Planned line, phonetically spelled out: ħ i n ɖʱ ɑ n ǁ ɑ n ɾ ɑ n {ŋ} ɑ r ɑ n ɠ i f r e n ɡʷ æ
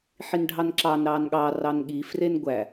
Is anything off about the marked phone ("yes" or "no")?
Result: yes